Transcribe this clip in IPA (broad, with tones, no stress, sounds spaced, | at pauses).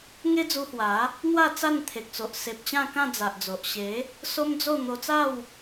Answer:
ŋ e˦ d͡z u˧ h w a˨˦ | n̪ w a˥˧ t͡s a˥˧ n t̪ʰ e˨ k̚ t͡s o˨ ʔ s e˨ p̚ t͡ɕ ã˥˧ k ã˥˧ d͡z a˨ ʔ d͡z o˨ ʔ ɕ e˨˦ | s o˦ m d͡z o˥˧ n̪ o˧ t͡s a˥˧ w